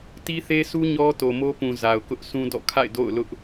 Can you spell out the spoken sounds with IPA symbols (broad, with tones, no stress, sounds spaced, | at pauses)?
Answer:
t i˦ θ e˦ s u˦ ɲ ɔ˦ t o˨ m o˦ p ũ˨ z a˨ ʊ̯ k ʊ˦ ʔ sʰ ũ˦ d ɔ̰˦˨ kʰ a̰˦˨ ɪ̯ d o̰˦˨ ʊ̯ l ʊ˦ ʔ